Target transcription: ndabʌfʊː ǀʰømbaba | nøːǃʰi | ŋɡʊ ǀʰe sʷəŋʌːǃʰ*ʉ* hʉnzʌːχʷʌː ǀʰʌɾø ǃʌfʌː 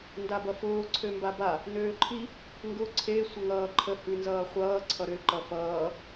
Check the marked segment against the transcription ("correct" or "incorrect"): incorrect